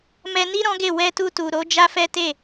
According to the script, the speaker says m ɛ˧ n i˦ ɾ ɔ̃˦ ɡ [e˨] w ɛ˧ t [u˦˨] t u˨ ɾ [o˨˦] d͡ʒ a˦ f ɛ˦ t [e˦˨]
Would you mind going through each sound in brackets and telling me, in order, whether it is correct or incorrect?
incorrect, incorrect, correct, correct

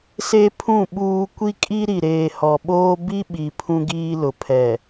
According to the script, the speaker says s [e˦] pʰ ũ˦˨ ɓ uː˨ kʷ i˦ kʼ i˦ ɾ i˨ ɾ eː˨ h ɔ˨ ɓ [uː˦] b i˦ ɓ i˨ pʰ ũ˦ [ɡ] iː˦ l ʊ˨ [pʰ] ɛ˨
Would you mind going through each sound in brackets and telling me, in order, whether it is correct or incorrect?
correct, incorrect, correct, correct

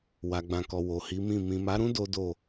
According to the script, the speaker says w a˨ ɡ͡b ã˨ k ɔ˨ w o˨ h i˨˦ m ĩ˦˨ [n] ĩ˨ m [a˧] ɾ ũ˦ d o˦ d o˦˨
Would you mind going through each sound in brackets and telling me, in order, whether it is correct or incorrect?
incorrect, incorrect

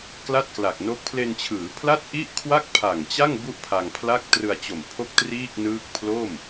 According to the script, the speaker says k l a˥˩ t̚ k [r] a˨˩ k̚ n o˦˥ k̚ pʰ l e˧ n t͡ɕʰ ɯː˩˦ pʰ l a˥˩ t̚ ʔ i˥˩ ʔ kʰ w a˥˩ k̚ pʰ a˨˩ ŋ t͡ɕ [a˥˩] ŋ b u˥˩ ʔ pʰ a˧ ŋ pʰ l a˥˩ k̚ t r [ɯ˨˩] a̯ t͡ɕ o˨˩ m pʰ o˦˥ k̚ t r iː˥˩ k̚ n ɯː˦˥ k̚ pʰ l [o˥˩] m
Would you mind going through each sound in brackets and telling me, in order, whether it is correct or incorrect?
incorrect, correct, incorrect, correct

